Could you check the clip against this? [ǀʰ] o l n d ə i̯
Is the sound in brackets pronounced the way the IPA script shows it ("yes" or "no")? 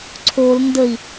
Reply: yes